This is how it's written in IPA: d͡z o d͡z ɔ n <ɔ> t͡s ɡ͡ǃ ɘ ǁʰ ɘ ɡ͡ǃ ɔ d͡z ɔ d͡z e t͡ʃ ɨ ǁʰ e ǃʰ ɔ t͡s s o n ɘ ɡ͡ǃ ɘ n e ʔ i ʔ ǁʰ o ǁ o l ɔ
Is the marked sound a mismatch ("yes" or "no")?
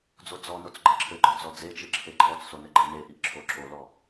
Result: yes